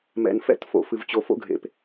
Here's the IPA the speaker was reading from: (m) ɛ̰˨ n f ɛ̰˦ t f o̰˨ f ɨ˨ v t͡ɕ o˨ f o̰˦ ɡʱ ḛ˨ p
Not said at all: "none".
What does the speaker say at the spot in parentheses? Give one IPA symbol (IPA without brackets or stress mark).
m